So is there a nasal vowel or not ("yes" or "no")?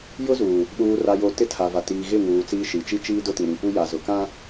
yes